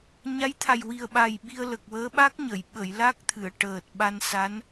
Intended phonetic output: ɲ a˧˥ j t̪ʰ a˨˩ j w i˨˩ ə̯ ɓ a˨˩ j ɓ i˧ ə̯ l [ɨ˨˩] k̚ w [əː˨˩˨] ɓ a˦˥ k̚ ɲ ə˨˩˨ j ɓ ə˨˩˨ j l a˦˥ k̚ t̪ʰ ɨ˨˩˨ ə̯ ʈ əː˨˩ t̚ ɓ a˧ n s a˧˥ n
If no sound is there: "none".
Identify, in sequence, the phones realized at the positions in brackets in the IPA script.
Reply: ə˨˩, əː˧˥

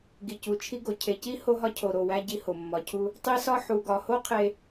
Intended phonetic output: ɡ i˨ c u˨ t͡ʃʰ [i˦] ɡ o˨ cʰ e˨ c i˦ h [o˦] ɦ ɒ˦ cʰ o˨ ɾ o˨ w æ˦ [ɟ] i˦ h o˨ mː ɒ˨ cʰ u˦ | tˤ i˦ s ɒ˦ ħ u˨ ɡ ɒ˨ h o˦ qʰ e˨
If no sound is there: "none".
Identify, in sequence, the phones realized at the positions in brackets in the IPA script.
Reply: i˦, o˦, ɟ

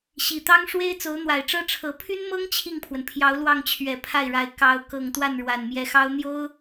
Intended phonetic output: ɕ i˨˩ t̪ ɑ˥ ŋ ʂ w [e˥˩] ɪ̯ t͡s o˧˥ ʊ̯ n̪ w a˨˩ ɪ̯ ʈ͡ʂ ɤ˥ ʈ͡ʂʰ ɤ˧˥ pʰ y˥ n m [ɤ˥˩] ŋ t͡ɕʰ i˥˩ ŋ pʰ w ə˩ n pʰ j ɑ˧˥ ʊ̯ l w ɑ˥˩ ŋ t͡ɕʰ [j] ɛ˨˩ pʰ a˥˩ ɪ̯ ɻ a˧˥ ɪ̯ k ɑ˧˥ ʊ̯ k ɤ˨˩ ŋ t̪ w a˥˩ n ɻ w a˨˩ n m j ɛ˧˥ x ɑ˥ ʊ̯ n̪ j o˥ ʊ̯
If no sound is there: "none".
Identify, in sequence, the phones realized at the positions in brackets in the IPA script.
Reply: e˥, ɤ˥, ɥ

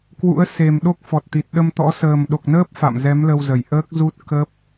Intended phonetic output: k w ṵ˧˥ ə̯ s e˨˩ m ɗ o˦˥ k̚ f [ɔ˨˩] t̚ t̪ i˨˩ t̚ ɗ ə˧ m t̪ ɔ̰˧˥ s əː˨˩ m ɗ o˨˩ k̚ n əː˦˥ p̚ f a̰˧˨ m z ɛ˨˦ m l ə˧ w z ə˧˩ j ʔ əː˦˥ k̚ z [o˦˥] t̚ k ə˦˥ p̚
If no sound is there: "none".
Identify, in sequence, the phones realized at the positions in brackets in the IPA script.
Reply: ɔ˨˩, u˦˥

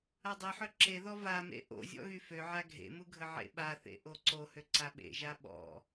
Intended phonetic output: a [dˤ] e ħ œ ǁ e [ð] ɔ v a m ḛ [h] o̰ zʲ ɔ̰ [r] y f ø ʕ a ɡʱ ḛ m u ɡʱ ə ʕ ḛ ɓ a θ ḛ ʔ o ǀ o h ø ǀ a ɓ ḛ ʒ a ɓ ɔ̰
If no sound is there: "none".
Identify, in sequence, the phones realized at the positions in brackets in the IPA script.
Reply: dˤ, ð, ʔ, ɣ

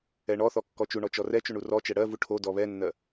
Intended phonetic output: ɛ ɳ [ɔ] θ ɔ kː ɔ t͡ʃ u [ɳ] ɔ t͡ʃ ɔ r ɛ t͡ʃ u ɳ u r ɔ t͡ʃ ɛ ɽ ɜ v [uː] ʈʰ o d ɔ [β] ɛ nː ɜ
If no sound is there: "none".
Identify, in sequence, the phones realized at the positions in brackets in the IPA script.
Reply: ɔ, ɳ, u, β

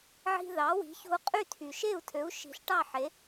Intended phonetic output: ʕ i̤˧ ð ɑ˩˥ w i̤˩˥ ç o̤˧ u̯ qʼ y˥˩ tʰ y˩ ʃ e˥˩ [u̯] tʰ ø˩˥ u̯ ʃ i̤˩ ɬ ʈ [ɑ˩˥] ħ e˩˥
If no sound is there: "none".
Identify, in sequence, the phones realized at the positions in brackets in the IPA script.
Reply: u̯, ɑ˥˩

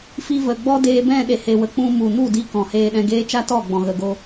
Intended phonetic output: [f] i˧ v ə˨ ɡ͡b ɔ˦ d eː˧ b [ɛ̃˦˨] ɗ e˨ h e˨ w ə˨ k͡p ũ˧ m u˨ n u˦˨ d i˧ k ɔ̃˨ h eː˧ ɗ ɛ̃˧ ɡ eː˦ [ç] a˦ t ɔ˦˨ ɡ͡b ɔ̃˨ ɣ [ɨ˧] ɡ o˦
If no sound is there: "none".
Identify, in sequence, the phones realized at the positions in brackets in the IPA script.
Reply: f, ɛ̃˦˨, t͡ʃ, ə˧

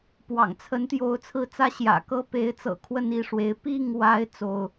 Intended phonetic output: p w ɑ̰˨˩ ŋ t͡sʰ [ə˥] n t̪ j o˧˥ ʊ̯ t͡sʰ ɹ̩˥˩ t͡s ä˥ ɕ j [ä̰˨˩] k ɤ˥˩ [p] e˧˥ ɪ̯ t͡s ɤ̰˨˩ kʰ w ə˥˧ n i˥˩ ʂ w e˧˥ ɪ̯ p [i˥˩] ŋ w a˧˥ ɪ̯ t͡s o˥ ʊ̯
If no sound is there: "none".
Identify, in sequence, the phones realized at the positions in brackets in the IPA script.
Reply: ə˧˥, ä̰˨˩, p, i˥˩

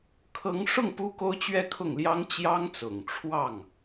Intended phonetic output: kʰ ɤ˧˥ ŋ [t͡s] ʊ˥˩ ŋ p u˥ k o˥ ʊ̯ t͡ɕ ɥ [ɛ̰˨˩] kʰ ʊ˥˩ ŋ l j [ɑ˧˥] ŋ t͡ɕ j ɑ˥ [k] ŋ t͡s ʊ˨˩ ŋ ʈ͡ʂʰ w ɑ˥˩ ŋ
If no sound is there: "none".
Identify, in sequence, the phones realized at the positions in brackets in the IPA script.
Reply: ʂ, ɛ˥˧, ɑ˥, none

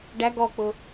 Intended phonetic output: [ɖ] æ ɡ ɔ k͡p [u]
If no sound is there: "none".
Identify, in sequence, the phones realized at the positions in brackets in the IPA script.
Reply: ɖ, ʊ

